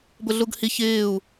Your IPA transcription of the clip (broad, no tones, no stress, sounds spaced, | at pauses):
b ʊ ɮ u ɡ h i ç ɪː u̯